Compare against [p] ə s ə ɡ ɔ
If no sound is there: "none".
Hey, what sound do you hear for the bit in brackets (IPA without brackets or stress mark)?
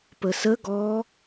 p